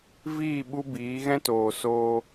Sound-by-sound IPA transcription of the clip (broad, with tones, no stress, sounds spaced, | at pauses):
v iː˦˨ ɓ u˦ b iː˨˦ ɣ ɛ̃˦ t oː˨ s oː˧